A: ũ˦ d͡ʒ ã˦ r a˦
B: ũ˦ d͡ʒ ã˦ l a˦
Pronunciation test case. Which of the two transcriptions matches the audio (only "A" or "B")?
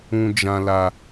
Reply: B